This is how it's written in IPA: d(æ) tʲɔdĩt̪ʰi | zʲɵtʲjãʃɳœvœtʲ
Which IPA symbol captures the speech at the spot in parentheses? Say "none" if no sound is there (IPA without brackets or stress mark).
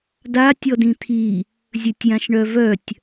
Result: a